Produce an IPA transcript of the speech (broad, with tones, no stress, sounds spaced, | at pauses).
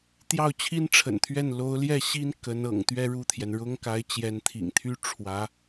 t̪ j ɑ˥˩ ʊ̯ t͡ɕʰ i˥ n ʈ͡ʂʰ ə̰˨˩ n t̪ʰ ɥ ɛ˥˩ n l o˧˥ ʊ̯ l j ɛ˥˩ ɕ i˥ n k ə˧˥ n ɤ̰˨˩ ŋ t̪ ɥ ɛ˥˧ ɻ u˥˩ t̪ʰ j ɛ˩ n ɻ ʊ˥ ŋ k a˧˥ ɪ̯ t͡ɕ j ɛ˧˥ n t̪ʰ ḭ˨˩ ŋ t̪ʰ y˥ ʈ͡ʂʰ w ä˧˥